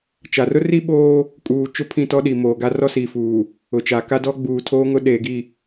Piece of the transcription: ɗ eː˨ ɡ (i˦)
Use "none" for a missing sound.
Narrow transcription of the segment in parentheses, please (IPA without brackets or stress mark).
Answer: i˦˨